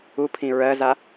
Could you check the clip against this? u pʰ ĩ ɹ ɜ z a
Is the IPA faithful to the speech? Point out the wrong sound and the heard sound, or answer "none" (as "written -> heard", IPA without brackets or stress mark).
none